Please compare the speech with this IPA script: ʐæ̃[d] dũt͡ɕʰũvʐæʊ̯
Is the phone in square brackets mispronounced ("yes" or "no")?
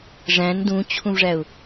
yes